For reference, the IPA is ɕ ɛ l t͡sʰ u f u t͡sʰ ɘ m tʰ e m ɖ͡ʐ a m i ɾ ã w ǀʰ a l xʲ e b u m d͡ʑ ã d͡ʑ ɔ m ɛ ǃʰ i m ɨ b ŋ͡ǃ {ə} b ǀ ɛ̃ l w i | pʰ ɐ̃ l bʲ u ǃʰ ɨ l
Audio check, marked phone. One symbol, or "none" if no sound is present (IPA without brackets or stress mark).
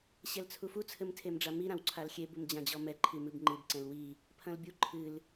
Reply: ɨ